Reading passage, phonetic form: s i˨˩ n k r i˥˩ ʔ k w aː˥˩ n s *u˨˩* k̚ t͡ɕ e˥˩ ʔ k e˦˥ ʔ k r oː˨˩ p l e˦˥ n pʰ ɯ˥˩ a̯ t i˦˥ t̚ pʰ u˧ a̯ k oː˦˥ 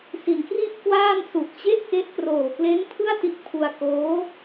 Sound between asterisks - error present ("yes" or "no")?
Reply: no